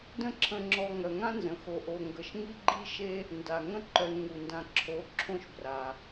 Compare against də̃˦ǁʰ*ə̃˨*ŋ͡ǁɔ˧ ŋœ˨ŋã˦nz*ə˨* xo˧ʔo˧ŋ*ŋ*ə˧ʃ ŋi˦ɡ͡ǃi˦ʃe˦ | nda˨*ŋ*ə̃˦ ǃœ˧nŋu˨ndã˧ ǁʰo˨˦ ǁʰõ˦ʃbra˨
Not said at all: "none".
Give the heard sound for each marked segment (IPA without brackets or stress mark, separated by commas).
ə̃˧, ə̃˨, ɡ, ŋ